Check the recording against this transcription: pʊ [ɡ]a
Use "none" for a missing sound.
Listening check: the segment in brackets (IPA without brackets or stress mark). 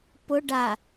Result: ɖ